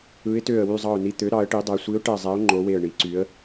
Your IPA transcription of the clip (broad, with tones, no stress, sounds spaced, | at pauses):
ɯ˨˦ ɪ̯ t ø˧˩ ə̯ w y˧˩ zˤ ɑ˧˩ ʊ̯ n i˧˩ t̪ ø˨˦ ɾ ɑ˨˦ ə̯ ʈ i˨˦ dˤ æ˨˦ sʷ i˨˦ ʊ̯ ʈ æ˧˩ zˤ æ˨˦ ʊ̯ ŋ͡ǃ o˨˦ w e˧˩ ə̯ ɳ i˨˦ ǀ y˨˦ ə̯